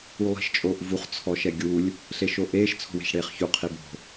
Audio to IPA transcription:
u lˠ i̤ ʃ t͡ʃʼ oː ʔ v u χ t͡sʰ ɔ ʃ ɛ ɡʲ u lʲ | ɬ e ʃ o ʔ eː ʃ t͡sʰ o̤ w e̤ ʃ ɽ eː χ ç u qʰ i b o̤

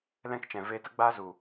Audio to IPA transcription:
l ɛ̃˦ k t͡ʃ ɛ̃˨ v eː˧ t ə˦ ɡ͡b aː˦ z u˨

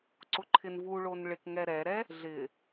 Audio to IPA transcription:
ǀ ʊ ǃʰ ɪ n v u ɭ o n ɭ ɪ k ŋ ɛ ɾ ɛ ɾ ɛ | ɮ ɪ

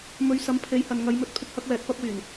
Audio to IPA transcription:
m ɵ˨˧ ɥ s ɐ˨˥ m pʰ e˨˥ j h ɐ˨ n ŋ ɐ˨˧ j m ɵ˨˥ t̚ pʰ ɪ˧ k̚ h ɐ˧ k̚ w ɛː˨ t̚ p ɐ˥ p̚ w yː˨˩ n

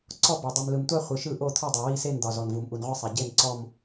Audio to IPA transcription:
ǀ ɔ˦˨ b ɒ˩ dˤ u˩ m l ɯ˩ m tʷ a˦˨ χʷ ɯ˩ ʃ ɯ˦˨ ʔ o˦˨ t̪ʰ ɔ˦˨ dˤ o˩ w i˦˨ s e˦˨ n d̪ ɒ˩ z ɔ˩ n v u˩ m ʔ u˩ n ʁʷ i˦˨ sˤ e˩ ɟ e˦˨ n ǀ ɔ˦˨ m

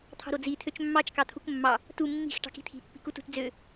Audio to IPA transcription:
t̪ʰ ɑ̤ ɾ o d͡z i t̪ʰ ø t͡ʃ mː ɑ t͡ʃ k ɑ t̪ʰ u k mː ɑ | t u mː i̤ x ʈ ɑ̤ k i̤ t̪ʰ i̤ pː i̤ k u t ṳ t d͡z ø

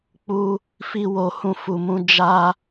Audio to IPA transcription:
k͡p u˦ | f i˦ w o˧ h ũ˦ f u˧ m ũ˦ d͡ʒ a˦

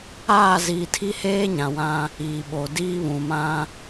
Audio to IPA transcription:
aː˦˨ z iː˨ tʰ i˦ h eː˦ ɲ ã˨ w ã˦ | iː˨ ɓ o˨ d iː˦ β ũ˨ m ã˦

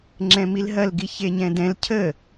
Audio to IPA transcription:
ŋ͡ǁ ɛ̃ m i l ɦ ɐ l ɡ i ç e ɲ ɛ̃ d ɛ̃ l cʰ ə

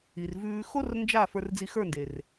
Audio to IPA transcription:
i˨ r v ʉː˧ x o˦ r n d͡ʒ a˦˨ f ə˞˧ r d͡z i˧ x ə˞˦˨ n d e˨ r

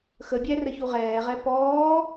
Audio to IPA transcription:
x ə bʲ æ r ə ç u ʁ ɛː ʁ ɛ p ɔː

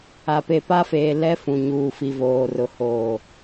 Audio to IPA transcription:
a˨ p e˨ p a˦ f eː˨ l ɛ˦ f ũ˨ ɲ uː˨ f i˨ v oː˨ r ʊ˨ h oː˨

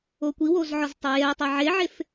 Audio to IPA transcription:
o kʷ i w o z ʕ ɔ z tˤ ɛ j ɛ tˤ a ʕ e ʕ e f

